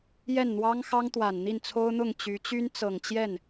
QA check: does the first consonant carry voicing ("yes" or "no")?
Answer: yes